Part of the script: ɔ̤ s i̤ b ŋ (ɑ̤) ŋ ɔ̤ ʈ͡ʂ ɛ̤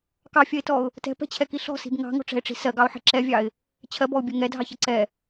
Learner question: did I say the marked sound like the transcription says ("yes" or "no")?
yes